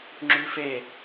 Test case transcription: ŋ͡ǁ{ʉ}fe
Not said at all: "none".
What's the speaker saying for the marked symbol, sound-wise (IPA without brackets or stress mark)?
ʉ